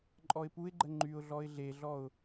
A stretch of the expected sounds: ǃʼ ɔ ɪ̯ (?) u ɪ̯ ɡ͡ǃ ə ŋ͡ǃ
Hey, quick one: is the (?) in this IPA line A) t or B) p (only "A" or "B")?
B